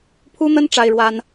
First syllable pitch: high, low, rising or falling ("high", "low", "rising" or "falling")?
high